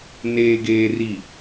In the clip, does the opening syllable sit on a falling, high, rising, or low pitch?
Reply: low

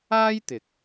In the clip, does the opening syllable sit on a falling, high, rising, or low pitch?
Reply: high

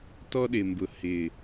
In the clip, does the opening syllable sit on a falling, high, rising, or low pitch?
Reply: high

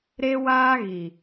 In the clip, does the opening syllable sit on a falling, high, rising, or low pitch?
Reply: high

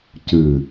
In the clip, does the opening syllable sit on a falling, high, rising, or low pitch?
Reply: low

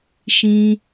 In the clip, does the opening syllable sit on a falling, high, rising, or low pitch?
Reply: high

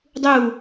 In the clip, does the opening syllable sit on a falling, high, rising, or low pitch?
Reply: falling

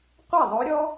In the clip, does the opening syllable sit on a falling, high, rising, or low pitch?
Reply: falling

